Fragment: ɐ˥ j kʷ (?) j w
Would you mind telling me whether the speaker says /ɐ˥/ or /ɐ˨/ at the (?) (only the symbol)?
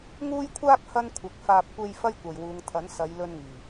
ɐ˨